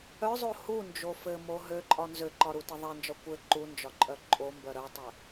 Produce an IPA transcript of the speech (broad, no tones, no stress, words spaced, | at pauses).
œzˤo hund͡ʒo fɘmo ɦøǃʼɒ nzøǃɒ ɾutɘðˤend͡ʒɒ kʷɘ ǃund͡ʒɒ ǃʼœǃʼombœ ɾœtˤɘ